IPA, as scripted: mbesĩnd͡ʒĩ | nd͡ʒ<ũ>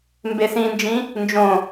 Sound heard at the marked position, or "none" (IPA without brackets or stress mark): õ